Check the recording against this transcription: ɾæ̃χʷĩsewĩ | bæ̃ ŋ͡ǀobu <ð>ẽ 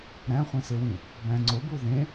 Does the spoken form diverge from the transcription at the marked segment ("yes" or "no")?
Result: no